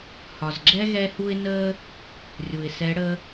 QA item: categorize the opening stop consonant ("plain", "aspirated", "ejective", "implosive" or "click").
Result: click